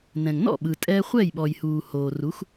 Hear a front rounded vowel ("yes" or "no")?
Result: no